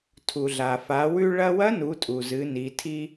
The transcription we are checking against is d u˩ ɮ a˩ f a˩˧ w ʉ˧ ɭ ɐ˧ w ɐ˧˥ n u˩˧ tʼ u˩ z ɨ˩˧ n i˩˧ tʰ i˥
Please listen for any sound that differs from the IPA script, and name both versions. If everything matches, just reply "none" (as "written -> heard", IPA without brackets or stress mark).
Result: d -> tʰ